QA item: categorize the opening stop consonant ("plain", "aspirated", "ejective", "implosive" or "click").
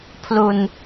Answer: aspirated